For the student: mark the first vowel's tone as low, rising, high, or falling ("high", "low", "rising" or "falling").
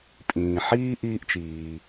low